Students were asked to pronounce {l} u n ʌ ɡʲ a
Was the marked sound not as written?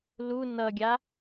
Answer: no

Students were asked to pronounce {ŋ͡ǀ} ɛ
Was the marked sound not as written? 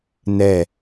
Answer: yes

